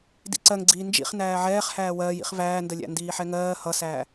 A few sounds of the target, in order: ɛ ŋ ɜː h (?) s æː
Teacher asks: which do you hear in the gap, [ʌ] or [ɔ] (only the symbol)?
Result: ʌ